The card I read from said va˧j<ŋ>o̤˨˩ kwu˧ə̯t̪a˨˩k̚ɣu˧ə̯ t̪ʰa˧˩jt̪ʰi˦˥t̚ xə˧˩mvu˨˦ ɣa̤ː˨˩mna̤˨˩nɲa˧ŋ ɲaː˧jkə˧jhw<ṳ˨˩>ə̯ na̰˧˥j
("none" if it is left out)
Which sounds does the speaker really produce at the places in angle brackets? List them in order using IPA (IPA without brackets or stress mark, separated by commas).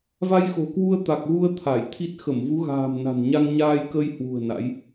x, ṳ˨˩